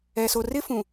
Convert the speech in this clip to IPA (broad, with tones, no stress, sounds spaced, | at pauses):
ɛ˨ s o˨ r ɪ˦ f ũ˨